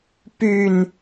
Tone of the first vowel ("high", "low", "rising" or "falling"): low